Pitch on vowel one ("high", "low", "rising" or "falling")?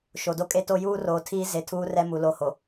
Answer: low